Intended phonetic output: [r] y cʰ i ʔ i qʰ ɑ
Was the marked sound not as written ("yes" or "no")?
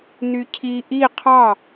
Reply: yes